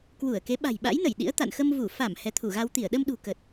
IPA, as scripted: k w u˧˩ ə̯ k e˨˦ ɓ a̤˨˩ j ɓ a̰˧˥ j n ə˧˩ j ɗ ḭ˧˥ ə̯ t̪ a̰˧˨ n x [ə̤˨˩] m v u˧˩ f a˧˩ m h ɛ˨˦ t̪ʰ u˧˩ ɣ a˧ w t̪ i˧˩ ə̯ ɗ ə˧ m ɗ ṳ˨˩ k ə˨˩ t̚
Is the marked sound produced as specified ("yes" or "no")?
no